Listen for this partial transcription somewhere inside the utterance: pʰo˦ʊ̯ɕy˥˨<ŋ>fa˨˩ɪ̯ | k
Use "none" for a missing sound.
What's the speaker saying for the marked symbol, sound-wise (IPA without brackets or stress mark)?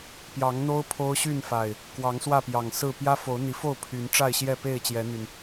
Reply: n